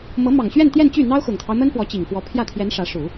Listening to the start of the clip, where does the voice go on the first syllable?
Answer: rising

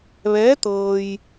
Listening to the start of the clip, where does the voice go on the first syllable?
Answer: rising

